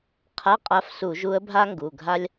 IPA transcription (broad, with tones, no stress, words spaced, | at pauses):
qʰa˧˥˧qʼa˧˥fsu˧˩˧ ʒu˧˥ə̯bʱa˥ŋɡu˩˧˩ɡʱa˥lʲ